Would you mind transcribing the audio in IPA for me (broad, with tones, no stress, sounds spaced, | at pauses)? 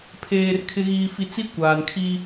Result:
pʰ eː˨ r kʰ ɪ˨ ɣ iː˨ f i˨ t͡s i˦ kʷ aː˨ n kʰ i˦